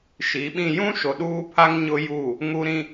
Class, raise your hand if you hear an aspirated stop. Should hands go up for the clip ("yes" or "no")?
yes